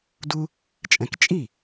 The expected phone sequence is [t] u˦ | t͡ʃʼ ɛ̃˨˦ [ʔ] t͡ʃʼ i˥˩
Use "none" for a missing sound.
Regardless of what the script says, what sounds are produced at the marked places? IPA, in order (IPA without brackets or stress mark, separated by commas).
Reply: d, k